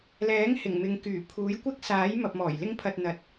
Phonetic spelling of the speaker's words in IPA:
l ɛː˨˥ ŋ h ɪ˨˩ ŋ m ɪ˨ ŋ k yː˨˩ pʰ uː˨˥ j kʷ ɪ˥ k̚ s aː˨˥ j m ɐ˨ p̚ m ɔː˨˩ j l ɪ˥ ŋ pʰ ɐ˧ t̚ n̪ ɐ˨ t̚

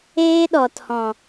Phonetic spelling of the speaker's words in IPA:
eː˦ ɗ ɔ˨ t h ɔ̃˨

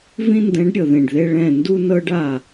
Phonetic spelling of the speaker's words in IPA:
v ĩ˦ n d ɛ̃˨˦ ɖ ɾʲ ɤ˨ ð ẽ˨ ɖ ð e˧ ɭ ɛ̃˦˨ n d u˦ n ɤ˦ ɖ a˦˨

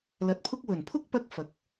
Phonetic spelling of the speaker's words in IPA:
l ɐ˧ t̚ pʰ ʊ˧ k̚ w ɵ˨˩ n pʰ ʊ˥ k̚ p ɐ˧ k̚ f ɐ˨˥ k̚

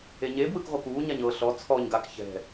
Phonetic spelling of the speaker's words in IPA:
e ɲ e b w ɯ k ʁʷ ɤ k uː ɲ a ɲ ɤ ɬ ɔ t͡sʰ ɔ ɲ ɡ a k ç ɛ̤

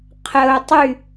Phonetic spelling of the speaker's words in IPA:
qʰ ə ʊ̯ tˤ y

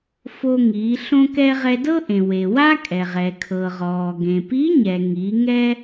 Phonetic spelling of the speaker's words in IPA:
f o˧ ŋ iː˩˧ ɬ õ˥ k ɛ˥ ʁ ɛ˧ d ɤ˥ ʔ ẽ˩ w e˩ w a˥ kʼ ɛ˩ ʁ ɛ˩ kʰ ɤ˩ ʁ ɔː˩ ɡ ẽ˩ p i˧˥ ɲ ɛ˩ ŋ i˩˧ ŋ ɛ˥

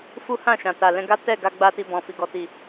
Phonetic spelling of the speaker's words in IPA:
f u˦ h ã˦˨ ʃ ã˨ t a˨ l ɛ̃˧ ɡ a˦ t ɛ˦˨ ɡ a˧ ɡ͡b a˦ t i˧ b ɔ̃˨ f i˨ ɡ ɔ˨ t i˨

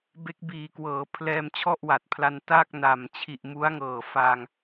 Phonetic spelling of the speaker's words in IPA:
b e˦˥ k̚ b iː˨˩ k w ɤː˩˦ pʰ l ɛː˧ m t͡ɕʰ ɔ˥˩ ʔ w a˨˩ t̚ pʰ l a˧ n t a˥˩ k̚ n a˨˩ m t͡ɕʰ i˨˩ ʔ m u˦˥ a̯ ŋ ɤː˨˩ f a˧ ŋ

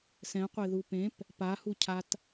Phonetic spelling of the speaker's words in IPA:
s ɛ̃ qʷ e ð u p ẽ p | p a h u cʰ a t

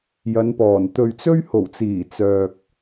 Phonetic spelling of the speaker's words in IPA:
j ɐ˨˧ n p ɔː˨˩ n t̪ ɵ˨ ɥ t͡s ɵ˥ ɥ h o˨˩ w t͡s iː˨˩ t͡s œː˨ k̚

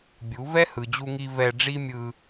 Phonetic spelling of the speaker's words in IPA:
bʲ u˨˦ v ɛ˦ h ɯ˨ d͡ʑ u˧ ŋ i˧ v ɛ˧ ɖ͡ʐ i˦ mʲ ɯ˧

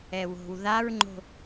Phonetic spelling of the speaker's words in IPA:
ɛ w o̤ w ð a ɹ ŋ͡ǃ o̤

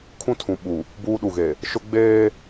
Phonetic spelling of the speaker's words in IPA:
kʰ ũ˦ tʰ ũ˨ ɓ u˨ | b uː˦ ɗ u˨ ɣ e˨ | ʃ ʊ˦ ɡ͡b eː˦

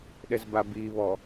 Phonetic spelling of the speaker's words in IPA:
ɗ ɛ z b a b i β ɔ

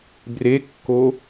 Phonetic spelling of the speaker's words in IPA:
b r e kː o

